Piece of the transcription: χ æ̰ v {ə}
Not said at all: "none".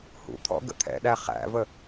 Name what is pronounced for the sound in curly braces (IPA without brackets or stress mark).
ə